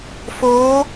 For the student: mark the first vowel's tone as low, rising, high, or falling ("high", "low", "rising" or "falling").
rising